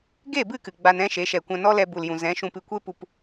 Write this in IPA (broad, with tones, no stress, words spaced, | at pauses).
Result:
ɡe˦˨bɨ˦˨kɨ˨ ɡ͡ba˧n ɛ̃˦ʃe˨˦ʃɛ˨ kʷã˧nɔ˦lɛ˧ bu˨ljũ˨ zɛ̃˨˦ʃũ˧pɨ˧kʷe˦ pu˨p